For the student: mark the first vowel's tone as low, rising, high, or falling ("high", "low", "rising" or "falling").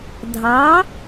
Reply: rising